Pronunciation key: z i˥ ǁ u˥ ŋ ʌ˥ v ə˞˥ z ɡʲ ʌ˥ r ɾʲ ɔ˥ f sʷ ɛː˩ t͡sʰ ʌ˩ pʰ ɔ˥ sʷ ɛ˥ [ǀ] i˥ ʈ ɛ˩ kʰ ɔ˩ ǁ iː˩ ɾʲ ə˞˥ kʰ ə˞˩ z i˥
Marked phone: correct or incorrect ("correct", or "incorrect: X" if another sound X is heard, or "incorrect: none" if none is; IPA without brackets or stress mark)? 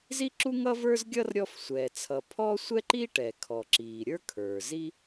incorrect: ǃ